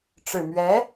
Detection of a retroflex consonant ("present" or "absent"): present